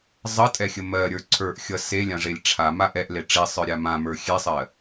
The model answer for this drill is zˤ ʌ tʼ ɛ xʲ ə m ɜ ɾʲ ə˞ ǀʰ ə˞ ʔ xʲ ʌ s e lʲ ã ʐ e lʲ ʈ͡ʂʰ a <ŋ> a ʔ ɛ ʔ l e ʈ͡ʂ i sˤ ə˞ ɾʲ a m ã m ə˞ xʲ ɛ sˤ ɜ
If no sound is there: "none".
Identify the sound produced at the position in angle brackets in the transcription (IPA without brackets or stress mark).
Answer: m